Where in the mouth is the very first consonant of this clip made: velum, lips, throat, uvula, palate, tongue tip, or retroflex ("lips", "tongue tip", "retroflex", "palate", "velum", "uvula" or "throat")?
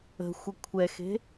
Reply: velum